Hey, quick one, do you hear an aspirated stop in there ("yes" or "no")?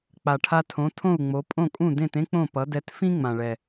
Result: yes